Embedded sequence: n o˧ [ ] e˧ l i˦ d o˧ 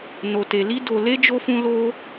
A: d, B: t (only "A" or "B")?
B